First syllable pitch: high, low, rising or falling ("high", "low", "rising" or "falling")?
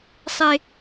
high